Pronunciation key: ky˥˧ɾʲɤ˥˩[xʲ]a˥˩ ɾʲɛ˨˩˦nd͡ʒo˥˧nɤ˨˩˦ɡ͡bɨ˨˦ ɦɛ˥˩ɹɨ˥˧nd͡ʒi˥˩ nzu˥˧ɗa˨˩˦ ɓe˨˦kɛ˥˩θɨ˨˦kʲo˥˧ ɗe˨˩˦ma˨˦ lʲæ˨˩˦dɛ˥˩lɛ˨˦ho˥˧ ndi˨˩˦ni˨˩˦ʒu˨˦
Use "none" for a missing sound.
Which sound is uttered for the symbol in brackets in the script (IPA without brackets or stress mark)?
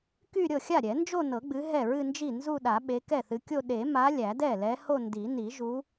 xʲ